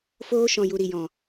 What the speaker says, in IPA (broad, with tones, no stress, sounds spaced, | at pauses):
f oː˧ ʃ ɔ̃˨ j u˨ ɾ i˨ j ɔ̃˨